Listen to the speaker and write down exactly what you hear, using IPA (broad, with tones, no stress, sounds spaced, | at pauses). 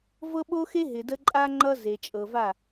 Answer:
v ɤ˦ ɓ o˦ x e˦ ɦ ɪ˨ d ə˦ ǃʼ a˦ ŋ͡ǃ ʌ˦ z e˨ t͡ʃʼ ɤ˨ v a˦˨